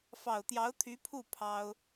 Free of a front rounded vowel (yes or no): no